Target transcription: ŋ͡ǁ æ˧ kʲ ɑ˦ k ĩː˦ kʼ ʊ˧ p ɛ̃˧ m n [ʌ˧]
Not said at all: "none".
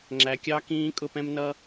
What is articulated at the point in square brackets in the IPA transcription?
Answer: ʌ˧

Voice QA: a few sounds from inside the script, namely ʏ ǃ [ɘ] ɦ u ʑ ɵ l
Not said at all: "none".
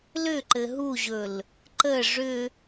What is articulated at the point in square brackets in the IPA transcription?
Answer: ɘ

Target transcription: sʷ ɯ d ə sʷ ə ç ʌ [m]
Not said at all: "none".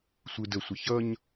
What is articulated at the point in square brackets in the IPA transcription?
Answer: ɲ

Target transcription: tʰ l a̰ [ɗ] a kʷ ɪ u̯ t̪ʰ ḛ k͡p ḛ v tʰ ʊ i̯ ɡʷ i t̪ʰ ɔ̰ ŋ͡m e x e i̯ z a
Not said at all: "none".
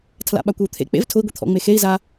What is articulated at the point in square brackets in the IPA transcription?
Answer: ɓ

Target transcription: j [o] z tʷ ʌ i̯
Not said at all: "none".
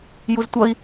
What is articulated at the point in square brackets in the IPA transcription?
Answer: u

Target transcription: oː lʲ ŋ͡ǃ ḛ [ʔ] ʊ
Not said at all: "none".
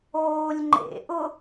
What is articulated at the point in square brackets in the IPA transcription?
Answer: ʔ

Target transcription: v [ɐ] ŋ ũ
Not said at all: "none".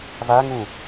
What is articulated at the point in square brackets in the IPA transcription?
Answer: a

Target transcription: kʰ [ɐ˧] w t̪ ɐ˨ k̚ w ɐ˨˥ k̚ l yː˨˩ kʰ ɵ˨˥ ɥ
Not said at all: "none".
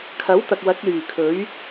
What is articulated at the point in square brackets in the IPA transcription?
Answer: ɐ˨˥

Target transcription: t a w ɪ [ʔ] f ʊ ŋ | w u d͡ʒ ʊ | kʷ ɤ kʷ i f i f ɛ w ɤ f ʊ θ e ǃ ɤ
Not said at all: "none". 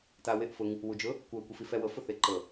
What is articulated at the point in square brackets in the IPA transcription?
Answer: ʔ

